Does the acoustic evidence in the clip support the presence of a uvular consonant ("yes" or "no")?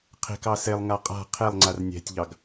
yes